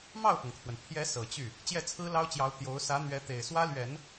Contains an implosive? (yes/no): no